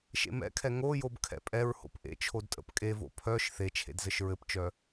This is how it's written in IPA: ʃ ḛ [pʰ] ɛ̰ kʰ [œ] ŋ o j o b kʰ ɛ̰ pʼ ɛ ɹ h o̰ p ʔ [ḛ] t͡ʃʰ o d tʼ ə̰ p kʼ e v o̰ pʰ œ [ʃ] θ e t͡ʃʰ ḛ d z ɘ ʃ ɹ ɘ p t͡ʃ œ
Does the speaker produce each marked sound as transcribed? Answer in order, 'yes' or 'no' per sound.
no, no, yes, yes

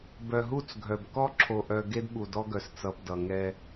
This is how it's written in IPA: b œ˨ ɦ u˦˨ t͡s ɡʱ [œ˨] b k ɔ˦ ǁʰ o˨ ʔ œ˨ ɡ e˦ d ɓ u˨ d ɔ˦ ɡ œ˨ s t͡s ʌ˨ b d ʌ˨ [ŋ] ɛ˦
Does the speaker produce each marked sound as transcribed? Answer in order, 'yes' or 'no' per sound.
yes, yes

